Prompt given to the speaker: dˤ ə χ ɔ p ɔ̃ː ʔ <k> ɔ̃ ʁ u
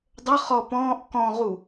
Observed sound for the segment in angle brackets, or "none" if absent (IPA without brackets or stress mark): k